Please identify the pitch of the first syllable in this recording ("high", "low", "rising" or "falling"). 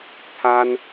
high